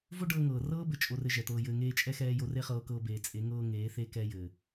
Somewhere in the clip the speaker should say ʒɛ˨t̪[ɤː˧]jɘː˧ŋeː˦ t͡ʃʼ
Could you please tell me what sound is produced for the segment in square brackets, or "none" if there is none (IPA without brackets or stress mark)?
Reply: ɤː˧